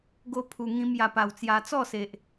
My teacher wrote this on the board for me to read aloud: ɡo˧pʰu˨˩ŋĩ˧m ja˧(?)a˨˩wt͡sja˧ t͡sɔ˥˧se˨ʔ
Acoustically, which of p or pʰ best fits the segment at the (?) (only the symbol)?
p